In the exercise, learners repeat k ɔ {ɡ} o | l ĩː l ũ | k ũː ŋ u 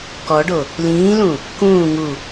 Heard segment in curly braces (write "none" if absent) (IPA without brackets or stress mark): ɖ